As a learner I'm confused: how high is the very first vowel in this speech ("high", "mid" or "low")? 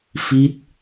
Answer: high